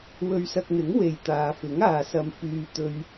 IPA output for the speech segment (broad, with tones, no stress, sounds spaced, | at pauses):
w ɵ˧ ɥ s ɐ˧ k̚ n̪ ɪ˨˥ ŋ w e˨ j t̪ aː˨ f ɪ˨˥ ŋ aː˨ s ɐ˧ m f yː˧ t̪ ɵ˧ ɥ